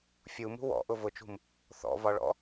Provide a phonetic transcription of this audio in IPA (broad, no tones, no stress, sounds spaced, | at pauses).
fʲ u m ṳ w ɔ̰ ʔ ʊ v ʊ t͡ʃ ṳ m | θ ɔ̰ v ɒ ɭ ɔ̰